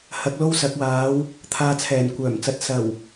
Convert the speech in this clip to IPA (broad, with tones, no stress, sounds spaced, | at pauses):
h ɐ˧ k̚ l o˥ w s ɐ˨˥ k̚ w aː˨˥ w | t̪ʰ aː˧ t͡sʰ ɛː˨˩ n kʷ œː˨˩ m t͡s ɐ˨˥ t̚ s ɐ˨˩ w